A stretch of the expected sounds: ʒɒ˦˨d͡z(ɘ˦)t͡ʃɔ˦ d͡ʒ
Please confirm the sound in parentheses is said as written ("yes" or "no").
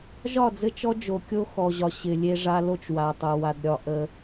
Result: yes